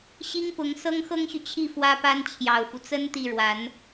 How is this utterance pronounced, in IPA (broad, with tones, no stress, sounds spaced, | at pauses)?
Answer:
ɕ i˥ ŋ p ʊ˧˥ ŋ s ɤ˥ ŋ x ɤ˥ ŋ ɕ y˨ t͡ɕʰ i˥˩ f w ä˥ p a˥ n t͡ɕʰ j ɑ˨˩ ʊ̯ f u˦ t͡s ə˥ n t̪ i˥˩ ɻ w a˧˥ n